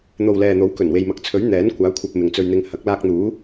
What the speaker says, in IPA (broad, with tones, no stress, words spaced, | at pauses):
n̪o˨wlɛː˨n̪o˨˥w kɵ˨˩nwe˨jmɐ˨k̚t͡sʰɵ˨˥ɥ n̪ɛː˨˥nkʷaː˨˥ kʷʰɐ˧p̚mɪ˨ŋt͡sɵ˧ɥn̪ɪ˧ŋ hɐ˨˥k̚laː˧k̚n̪uː˨˥